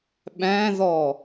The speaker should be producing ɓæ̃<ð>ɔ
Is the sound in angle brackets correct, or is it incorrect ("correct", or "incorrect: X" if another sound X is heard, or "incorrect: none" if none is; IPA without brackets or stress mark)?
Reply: correct